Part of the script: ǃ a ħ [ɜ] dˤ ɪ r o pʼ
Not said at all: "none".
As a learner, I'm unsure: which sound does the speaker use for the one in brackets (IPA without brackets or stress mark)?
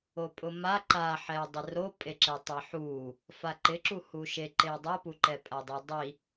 ɛ